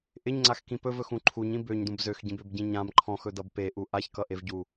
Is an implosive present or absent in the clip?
absent